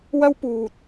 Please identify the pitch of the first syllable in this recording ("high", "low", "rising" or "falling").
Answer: high